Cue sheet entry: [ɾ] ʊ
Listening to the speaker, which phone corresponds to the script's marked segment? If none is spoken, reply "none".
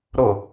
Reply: ɾ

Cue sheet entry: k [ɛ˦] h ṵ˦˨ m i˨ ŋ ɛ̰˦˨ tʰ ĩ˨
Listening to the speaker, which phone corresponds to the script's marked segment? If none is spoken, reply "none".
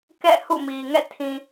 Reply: ɛ̰˦˨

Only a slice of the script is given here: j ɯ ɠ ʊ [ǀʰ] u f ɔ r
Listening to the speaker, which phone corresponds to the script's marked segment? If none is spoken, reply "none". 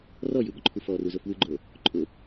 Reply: ǃʰ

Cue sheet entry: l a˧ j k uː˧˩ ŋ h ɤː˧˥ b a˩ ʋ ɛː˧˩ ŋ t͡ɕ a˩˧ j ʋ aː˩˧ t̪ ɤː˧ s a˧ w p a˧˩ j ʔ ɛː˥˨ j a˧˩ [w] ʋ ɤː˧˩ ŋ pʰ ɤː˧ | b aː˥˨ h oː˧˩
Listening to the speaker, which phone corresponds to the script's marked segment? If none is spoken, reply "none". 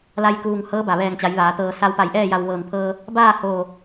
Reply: w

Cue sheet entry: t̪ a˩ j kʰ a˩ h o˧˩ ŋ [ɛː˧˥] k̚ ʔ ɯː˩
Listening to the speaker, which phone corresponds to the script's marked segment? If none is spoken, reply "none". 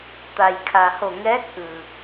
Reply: ɛː˧˥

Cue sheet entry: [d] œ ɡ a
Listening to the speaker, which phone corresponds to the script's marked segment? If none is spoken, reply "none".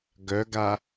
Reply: ɡ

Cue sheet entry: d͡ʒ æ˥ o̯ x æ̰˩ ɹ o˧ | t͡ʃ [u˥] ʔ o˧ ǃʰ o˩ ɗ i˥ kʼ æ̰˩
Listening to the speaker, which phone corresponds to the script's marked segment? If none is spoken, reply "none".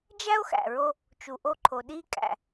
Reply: u˩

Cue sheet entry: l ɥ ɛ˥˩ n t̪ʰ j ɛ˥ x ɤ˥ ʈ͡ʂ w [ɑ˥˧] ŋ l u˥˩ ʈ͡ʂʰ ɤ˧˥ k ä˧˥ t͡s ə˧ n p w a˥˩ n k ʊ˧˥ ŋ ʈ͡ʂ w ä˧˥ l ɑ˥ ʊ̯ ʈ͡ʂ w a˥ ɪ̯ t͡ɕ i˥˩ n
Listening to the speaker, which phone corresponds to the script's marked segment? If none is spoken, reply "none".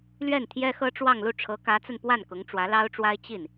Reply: ɑ˥˧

